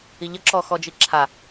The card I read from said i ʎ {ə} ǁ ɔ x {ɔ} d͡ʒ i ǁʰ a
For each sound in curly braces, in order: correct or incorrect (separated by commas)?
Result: correct, correct